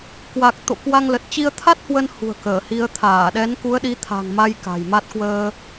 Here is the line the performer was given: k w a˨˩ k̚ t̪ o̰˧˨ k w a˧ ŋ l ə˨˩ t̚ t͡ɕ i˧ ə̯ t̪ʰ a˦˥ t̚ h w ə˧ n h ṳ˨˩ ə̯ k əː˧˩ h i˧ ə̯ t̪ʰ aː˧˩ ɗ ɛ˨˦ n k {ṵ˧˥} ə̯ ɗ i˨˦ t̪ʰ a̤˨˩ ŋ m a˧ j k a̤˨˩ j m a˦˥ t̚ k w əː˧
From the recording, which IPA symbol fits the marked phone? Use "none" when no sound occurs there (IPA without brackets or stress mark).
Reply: u˨˦